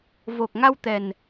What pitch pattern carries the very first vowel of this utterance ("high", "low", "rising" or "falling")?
low